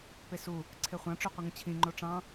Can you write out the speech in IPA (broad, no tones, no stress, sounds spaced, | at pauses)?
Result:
p e s u | ǀʰ e χʷ ɑ̃ ʈ͡ʂ y qʷ ɯ ŋ ũ t͡ɕʰ ĩ ŋ͡ǃ o ʈ͡ʂ ɑ̃